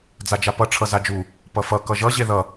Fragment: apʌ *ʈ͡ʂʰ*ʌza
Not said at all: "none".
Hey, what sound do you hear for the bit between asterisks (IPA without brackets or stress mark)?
ʈ͡ʂʰ